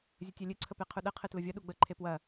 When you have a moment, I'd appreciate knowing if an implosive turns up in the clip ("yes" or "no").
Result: yes